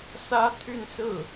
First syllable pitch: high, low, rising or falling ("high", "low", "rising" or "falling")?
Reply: high